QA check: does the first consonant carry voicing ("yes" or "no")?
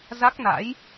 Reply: yes